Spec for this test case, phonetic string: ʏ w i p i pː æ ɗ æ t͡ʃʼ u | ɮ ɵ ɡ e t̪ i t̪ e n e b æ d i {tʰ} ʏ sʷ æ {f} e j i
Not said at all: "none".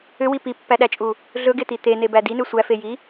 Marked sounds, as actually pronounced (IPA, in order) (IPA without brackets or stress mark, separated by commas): n, f